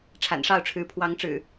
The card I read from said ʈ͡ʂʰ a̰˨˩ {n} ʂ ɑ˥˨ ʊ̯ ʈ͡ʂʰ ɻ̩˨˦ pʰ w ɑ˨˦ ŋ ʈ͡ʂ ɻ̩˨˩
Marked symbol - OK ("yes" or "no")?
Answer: yes